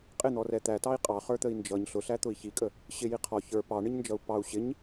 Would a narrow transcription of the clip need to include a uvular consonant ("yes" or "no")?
yes